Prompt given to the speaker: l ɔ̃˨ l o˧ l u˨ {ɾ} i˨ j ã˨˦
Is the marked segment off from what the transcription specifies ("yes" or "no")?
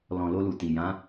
yes